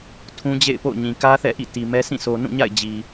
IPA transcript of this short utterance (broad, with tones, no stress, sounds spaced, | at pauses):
tʰ ũ˦ d͡ʑ ḛ˦˨ ɪ̯ p o̰˦˨ ʊ̯ ɲ ĩ˨ k ä˦ θ ɛ̰˦˨ ʔ ḭ˦˨ t i˨ m ɛ˦ sʰ ĩ˦˨ sʰ o˨ n ũ˦˨ ɲ a̰˦˨ ɪ̯ d͡ʑ i˨